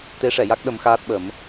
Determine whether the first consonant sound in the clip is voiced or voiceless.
voiceless